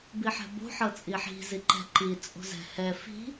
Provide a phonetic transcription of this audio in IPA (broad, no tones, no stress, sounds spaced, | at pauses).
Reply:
b i ħ ɛ̤ b o̤ ħ ɤ t͡sʼ i ħ i̤ z i ǃ ɛ̤ ǃ i t͡sʼ o̤ z ɛ̤ h ɛ f i̤